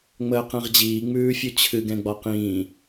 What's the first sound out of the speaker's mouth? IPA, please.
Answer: ŋ͡m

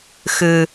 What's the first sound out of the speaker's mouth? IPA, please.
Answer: x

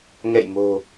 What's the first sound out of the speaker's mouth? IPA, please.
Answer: ŋ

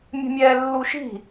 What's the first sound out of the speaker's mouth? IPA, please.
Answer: mʲ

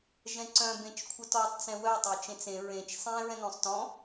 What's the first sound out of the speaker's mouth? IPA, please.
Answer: ʒ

